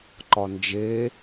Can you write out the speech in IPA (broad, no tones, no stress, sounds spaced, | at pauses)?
ǃ ɒ n d͡ʒ e